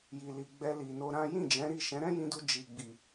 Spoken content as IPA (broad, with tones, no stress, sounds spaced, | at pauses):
j i˨ l i˨ ɡ͡b ɛ˧ l i˨ n o˧ ɾ ã˦ j ĩ˦˨ d͡ʒ ɛ̃˨˦ ɾ i˦˨ ʃ ɛ̃˨˦ ɾ ɛ̃˦ j ĩ˧ d u˧ d͡ʒ i˨ ɡ͡b i˨